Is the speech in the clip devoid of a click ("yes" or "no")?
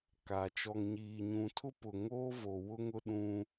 yes